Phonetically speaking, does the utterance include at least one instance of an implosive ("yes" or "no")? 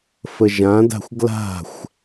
no